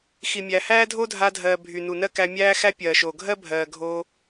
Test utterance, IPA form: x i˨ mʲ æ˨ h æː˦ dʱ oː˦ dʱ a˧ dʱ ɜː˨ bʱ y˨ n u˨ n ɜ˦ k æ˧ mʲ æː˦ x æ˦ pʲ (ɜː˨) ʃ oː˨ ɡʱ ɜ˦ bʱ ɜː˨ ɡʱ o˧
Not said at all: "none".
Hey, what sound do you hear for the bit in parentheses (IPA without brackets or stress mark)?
ɜː˨